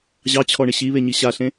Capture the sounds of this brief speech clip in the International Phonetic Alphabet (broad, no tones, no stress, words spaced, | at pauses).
ʑɑt͡ɕʰɔɳɪ ɕiβeɲi ɕaɬẽ